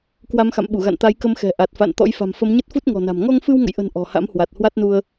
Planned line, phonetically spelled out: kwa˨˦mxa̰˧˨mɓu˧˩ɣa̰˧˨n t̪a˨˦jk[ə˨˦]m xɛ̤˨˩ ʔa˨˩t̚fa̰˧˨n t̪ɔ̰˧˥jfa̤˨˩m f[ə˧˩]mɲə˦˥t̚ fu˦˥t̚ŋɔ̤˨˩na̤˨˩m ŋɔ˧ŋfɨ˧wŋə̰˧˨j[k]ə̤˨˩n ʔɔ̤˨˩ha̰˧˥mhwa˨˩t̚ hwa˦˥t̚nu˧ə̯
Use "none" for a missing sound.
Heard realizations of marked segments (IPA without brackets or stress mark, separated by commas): ə˨˦, ə˨˦, ʔ